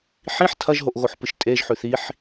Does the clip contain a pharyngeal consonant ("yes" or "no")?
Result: yes